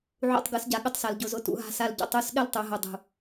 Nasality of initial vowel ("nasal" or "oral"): oral